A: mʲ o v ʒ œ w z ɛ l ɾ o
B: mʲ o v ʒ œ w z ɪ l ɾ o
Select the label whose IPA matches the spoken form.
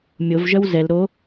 A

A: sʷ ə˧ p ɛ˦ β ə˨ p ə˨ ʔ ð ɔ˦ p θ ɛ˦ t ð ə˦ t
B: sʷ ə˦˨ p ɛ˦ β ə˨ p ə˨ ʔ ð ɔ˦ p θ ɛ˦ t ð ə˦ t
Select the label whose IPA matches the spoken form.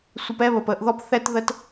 A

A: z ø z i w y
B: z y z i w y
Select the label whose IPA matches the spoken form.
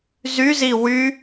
B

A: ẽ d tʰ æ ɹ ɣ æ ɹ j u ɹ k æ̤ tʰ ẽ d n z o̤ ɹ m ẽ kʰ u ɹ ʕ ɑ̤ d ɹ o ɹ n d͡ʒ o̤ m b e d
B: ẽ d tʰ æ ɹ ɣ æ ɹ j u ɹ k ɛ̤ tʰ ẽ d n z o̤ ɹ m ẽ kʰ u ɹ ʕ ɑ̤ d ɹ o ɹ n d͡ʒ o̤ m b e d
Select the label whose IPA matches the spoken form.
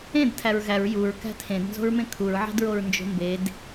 A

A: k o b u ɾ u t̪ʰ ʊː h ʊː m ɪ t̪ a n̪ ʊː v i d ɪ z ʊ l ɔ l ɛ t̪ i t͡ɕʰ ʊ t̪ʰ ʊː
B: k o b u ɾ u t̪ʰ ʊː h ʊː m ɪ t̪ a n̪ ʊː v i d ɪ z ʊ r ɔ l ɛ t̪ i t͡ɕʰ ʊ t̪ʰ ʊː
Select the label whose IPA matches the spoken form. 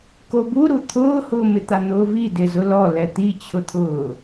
A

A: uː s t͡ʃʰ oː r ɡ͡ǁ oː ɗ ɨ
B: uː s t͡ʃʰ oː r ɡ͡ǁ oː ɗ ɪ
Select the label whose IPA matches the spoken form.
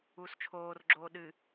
A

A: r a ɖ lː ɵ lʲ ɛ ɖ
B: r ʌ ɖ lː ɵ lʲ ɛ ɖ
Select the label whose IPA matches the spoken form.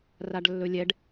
A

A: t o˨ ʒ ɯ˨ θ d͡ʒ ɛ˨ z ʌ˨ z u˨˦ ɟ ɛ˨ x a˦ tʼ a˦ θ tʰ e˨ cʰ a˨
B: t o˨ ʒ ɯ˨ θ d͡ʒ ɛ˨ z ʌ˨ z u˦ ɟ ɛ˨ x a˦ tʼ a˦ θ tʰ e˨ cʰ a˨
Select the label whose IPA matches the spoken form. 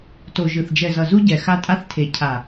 B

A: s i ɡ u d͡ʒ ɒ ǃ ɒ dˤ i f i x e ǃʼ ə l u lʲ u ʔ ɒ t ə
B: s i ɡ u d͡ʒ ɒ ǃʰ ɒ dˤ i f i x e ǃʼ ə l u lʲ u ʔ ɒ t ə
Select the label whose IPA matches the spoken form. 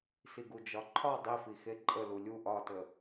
B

